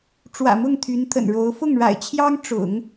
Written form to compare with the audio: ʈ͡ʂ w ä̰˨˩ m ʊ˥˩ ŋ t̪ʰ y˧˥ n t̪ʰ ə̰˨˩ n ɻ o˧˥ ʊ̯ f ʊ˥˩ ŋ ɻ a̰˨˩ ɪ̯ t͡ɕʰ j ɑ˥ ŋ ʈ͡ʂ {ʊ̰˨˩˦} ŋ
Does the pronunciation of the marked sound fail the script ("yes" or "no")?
no